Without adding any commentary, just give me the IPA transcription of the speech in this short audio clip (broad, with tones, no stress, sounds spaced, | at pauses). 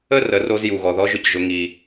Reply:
ə˥ r ə˩˧ r o˧ z j u˩ ɣ ɔ˩ ð ɔ˧˥ ʒ ʊ˧ c ʒ ʊ˩˧ ŋ i˩